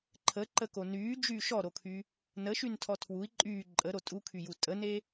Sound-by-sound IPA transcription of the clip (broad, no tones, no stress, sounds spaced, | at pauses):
ǃʰ ə ǃ ə k o n yː d͡ʒ yː ʃ ɔ ɾ o kʰ y | n ə ʃ y n tʰ ɔ tʰ w u i̯ ǃʼ yː ǃʼ ə ɾ o tʼ u kʰ y j u tʼ ə n e